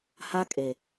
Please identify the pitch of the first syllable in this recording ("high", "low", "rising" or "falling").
high